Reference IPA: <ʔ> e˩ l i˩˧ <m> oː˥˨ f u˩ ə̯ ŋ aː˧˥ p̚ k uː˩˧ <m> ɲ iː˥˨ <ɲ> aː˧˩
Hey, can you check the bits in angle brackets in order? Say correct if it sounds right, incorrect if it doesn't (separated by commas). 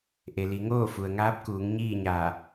correct, incorrect, incorrect, correct